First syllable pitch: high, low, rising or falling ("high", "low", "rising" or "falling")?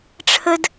high